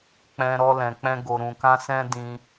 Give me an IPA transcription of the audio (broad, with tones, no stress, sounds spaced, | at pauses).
k͡p ɛ̃˧ ɾ ɔ˦ l ɛ̃˧ k͡p ɛ̃˦ ɡ o˧ ɾ ũ˧ k ã˦ s ɛ̃˦ d ĩ˧